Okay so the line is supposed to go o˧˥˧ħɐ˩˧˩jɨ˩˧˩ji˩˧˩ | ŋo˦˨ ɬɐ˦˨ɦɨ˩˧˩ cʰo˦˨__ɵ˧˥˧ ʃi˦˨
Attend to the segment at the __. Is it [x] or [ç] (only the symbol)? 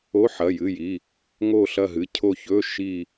ç